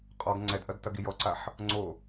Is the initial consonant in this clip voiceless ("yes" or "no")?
yes